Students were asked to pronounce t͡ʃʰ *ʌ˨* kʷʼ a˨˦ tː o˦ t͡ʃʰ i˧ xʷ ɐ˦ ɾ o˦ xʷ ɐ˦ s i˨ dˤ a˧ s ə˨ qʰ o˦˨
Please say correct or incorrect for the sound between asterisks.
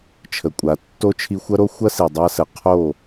incorrect